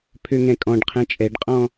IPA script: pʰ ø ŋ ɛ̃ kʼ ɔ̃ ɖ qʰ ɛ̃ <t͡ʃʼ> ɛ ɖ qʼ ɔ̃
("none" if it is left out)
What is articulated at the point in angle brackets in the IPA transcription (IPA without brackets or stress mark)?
t͡ʃʼ